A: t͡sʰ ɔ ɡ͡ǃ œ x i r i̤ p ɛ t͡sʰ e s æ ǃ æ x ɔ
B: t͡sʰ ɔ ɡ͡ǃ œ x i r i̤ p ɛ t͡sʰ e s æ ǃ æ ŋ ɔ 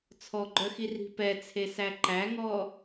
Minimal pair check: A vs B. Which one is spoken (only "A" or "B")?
B